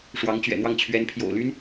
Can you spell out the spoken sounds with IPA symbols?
ʂwɑ˧˥ŋt͡ɕɥɛ̰˨˩n̪wɑ˥˩ŋ t͡ɕʰɥɛ˧˥npʰjo̰˨˩ʊ̯ly˥n

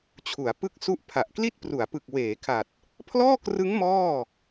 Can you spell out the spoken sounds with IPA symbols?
t͡ɕʰu˩˦a̯pɯ˥˩k̚su˥˩ʔ pʰa˨˩ʔkli˥˩t̚pru˩˦a̯pɯ˨˩k̚ weː˩˦kʰa˨˩t̚ | pʰlɔː˥˩krɯ˦˥ŋ mɔː˥˩

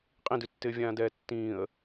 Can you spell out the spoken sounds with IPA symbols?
qʼĩdʉtːɪː vʲãːdɛːtːĩːə̯

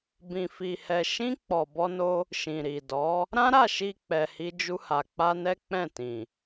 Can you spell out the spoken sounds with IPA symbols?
bĩ˧fi˧hɛ˧ ʃĩ˦ k͡pɔ˧bɔ˦no˦ | ʃĩ˨ɾi˨dɔ˨˦ | ɾã˦ɾa˦˨ʃi˧ k͡pɛ˧hi˦d͡ʒu˦ha˧ k͡pa˦nɛ˦k͡pɛ̃˦˨ tĩ˨

